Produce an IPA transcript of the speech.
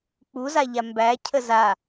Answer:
k͡p u z a ʎ a m b æ cʰ ə z a

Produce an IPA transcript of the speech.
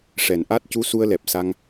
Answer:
ʂ ɛ˨˩˨ n ʔ a˦˥ t̚ c u˧˥ s u˧ ə̯ l ɛ˨˩ p̚ s a˧ ŋ

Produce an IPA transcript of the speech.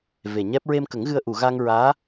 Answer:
v e˨˩ ɲ ɛ˦˥ p̚ ɹ e˧ m k ə˨˩˦ ŋ ɣ ɨ˧ ə̯ ʔ u˨˩˨ ɣ a˧ ŋ ɹ aː˧˥

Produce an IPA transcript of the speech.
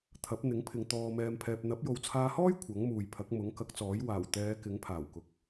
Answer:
t̪ʰ ɐ˨˥ p̚ n̪ ɪ˨˥ ŋ pʰ ɪ˨ ŋ t̪ ɔː˨ m ɛː˨ m pʰ ɛː˨ p̚ n̪ ɐ˨˥ p̚ j o˨ w t͡sʰ aː˧ h ɔː˥ j kʷʰ ɐ˨˥ ŋ m uː˨ j pʰ ɐ˨˥ k̚ m ʊ˨˥ ŋ k ɐ˨˥ k̚ t͡s ɔː˨˥ j w aː˨˩ w t̪ ɛː˨˧ k ɪ˨˥ ŋ pʰ aː˨˩ w k ʊ˨˥ k̚

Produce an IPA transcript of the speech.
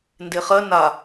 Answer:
n d e χ ɜ n a

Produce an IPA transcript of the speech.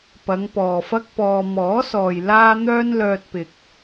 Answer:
p ɐ˨˧ ŋ p ɔː˨ f ɐ˥ k̚ p ɔː˧ m ɔː˨˥ s ɔː˨ j l aː˥ n̪ œː˥ n l œː˧ t̚ p ɪ˨ k̚

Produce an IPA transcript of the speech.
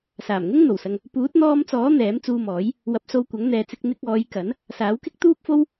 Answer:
s aː˨˩ m ŋ ʊ˥ ŋ n̪ o˨˩ w s ɐ˧ ŋ | p uː˨˥ t̚ n̪ ɔː˧ m t͡s ɔː˨˥ n̪ ɛː˨˥ m t͡s uː˧ m ɔː˨˥ j | w ɐ˨˥ p̚ s o˧ w kʷ ɐ˨˥ ŋ n̪ ɛː˨ t͡s ɪ˧ k̚ n̪ ɪ˧ k̚ ɔː˨˧ j k ɐ˨˥ n | s aː˨˥ w k ɪ˥ k̚ t̪ uː˥ p̚ f o˥ w

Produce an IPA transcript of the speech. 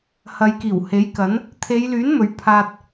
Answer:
h ɐ˨˧ j k iː˨˩ w h e˨˥ j k ɐ˨˥ n | t̪ʰ e˨˧ j l yː˨˥ n m ɵ˨˥ ɥ pʰ aː˧ t̚

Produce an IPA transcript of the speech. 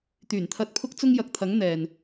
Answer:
t̪ yː˨˩ n t̪ʰ ɐ˧ t̚ pʰ ʊ˥ k̚ t͡s ʊ˥ ŋ j ɐ˨ k̚ t̪ʰ ɐ˨˥ ŋ n̪ ɛː˨ n

